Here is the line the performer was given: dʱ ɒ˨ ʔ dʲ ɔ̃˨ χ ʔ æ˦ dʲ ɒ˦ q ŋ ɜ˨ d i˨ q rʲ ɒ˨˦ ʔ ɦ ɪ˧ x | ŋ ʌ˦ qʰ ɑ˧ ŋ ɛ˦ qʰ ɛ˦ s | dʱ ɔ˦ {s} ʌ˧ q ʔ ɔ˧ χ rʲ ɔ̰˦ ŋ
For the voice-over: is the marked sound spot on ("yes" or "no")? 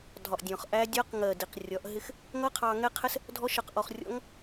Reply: no